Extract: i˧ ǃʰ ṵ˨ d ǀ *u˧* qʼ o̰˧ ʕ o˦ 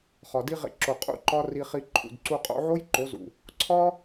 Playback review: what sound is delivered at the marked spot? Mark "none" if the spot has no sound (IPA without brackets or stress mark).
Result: u˧